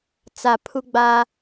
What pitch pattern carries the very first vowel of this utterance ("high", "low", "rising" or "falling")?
low